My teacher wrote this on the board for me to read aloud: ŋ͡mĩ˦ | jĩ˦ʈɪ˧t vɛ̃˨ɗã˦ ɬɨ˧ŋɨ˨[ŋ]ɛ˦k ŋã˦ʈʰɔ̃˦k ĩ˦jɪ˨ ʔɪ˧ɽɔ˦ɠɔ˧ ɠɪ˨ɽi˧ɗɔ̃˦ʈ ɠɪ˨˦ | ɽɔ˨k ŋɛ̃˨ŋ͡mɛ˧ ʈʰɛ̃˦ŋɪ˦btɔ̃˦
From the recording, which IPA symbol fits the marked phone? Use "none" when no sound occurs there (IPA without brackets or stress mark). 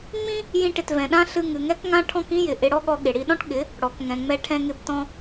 ŋ